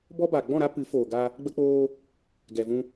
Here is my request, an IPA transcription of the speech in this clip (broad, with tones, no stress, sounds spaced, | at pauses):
b ɔ˦ b aː˨ ɡ͡b ɔ̃˦˨ ɾ a˦ p ɨ˨˦ f oː˨ ɡ a˧ | ɡ͡b ə˧ k͡p oː˧ | ɡ ɛ˨ v ũ˧